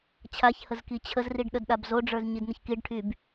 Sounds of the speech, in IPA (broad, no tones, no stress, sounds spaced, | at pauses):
t͡ɕʰ a ç h ə z k i t͡ɕʰ ə z r i ɖ ɗ ə d ɗ a b z o ɖ͡ʐ ə˞ z ɲ i d n ə ç k i ɖ ʈʰ y b